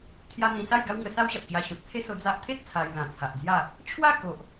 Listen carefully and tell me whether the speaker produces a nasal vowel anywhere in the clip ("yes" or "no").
yes